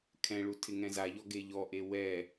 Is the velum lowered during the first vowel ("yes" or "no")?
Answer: yes